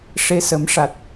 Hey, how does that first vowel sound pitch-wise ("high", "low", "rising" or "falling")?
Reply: rising